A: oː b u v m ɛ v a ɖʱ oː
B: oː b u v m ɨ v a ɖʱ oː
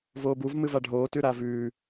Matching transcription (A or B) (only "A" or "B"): B